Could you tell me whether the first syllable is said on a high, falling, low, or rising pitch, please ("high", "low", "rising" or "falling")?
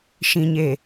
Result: low